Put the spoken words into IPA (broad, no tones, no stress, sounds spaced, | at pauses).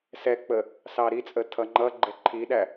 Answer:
s ɛ k͡p ə | s ɑ ɾ i t͡sʼ ə tʰ ʌ ŋ͡ǃ ʌ ɡ͡ǃ ɛ ǃʰ i ɗ æ